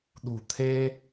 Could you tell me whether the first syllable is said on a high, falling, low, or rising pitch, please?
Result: low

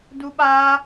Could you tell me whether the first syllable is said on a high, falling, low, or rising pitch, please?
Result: high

